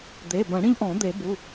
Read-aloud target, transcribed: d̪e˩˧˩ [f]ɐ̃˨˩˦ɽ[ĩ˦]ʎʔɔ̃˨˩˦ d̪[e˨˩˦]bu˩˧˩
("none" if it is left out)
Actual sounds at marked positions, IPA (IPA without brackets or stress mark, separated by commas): b, ĩ˦, e˨˩˦